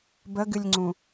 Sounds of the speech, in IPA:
b ə ɡ ɨ lʲ ŋ͡ǀ ũ

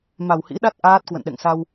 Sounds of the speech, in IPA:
m a˨˩ w h ḭ˧˥ ɗ a˦˥ t̚ ʔ aː˦˥ t̚ k w ə̰˧˨ n ɗ ɛ̰˧˨ ŋ s a˧ w

